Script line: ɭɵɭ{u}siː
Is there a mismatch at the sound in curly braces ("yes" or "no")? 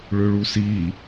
no